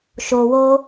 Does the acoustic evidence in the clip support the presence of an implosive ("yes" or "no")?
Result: no